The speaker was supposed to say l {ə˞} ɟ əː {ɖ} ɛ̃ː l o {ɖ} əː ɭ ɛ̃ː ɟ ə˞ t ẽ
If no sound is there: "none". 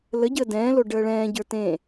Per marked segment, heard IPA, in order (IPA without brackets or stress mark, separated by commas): ə, d, ɖ